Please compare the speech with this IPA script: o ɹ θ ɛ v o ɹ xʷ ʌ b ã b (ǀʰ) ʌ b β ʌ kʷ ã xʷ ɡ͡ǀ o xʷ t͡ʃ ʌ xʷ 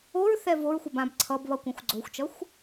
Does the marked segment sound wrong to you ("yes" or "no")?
no